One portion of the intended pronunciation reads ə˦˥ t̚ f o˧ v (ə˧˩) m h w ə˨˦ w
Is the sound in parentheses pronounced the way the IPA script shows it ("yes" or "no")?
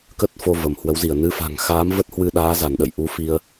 yes